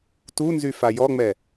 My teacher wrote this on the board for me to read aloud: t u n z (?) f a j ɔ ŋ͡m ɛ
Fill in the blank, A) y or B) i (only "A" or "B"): A